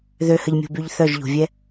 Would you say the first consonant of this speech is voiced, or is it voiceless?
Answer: voiced